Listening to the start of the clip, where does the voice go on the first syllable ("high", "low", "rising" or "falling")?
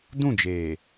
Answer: falling